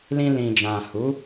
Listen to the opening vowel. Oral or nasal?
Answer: nasal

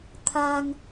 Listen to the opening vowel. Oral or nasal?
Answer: oral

